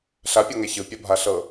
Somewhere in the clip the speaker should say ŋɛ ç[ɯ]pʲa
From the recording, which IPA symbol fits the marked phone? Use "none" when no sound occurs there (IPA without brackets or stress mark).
ɯ